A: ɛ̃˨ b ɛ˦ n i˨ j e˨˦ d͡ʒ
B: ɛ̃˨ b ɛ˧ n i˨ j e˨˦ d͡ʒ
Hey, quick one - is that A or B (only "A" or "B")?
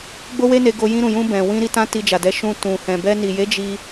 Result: B